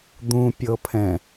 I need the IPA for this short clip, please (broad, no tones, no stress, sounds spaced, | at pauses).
d̪ ũ pʲ ɤ pʰ ɛ̃